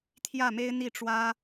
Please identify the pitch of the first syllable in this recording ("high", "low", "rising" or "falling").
falling